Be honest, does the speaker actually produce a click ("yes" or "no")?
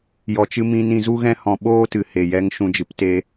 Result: no